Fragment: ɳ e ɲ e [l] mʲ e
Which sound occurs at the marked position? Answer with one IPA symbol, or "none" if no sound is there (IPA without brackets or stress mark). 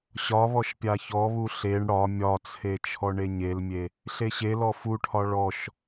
l